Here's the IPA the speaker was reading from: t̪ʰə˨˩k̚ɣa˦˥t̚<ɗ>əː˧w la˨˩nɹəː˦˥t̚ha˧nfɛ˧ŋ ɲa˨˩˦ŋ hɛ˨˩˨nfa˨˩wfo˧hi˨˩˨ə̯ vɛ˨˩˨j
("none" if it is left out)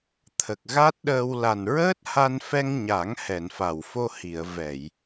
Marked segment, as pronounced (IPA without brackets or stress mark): ɗ